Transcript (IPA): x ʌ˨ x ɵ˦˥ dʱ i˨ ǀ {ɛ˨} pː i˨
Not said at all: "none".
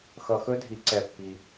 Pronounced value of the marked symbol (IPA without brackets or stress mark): ɛ˨